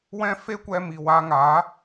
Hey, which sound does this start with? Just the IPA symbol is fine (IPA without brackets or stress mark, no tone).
w